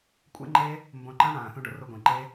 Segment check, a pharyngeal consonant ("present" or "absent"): absent